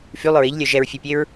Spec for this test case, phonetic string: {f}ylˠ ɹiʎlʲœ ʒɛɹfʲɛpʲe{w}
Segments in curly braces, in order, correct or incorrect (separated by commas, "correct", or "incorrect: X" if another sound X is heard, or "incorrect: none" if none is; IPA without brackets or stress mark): correct, incorrect: ɹ